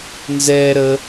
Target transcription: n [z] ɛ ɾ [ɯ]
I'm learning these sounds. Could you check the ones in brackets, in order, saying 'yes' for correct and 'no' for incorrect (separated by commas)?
yes, no